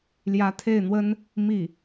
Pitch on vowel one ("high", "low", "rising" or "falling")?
rising